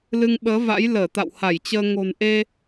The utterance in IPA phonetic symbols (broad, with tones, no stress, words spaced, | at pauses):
lɨ˧ŋɓəː˨˦va̰˧˥j ləː˧˩t̪a̰˧˨wha˧˩jt͡ɕəː˧ ŋo̤˨˩nʔe˧